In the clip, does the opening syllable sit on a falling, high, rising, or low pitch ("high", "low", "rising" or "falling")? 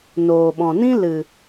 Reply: low